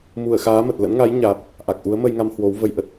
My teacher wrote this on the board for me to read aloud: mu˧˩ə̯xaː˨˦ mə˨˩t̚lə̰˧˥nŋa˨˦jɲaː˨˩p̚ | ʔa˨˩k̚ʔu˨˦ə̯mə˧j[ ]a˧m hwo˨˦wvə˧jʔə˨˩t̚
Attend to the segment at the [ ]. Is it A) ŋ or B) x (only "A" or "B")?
A